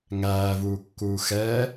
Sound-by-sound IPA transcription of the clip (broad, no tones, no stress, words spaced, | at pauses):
ŋæːvuːkːuː xɛː